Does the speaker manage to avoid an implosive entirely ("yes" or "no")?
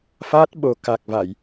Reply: no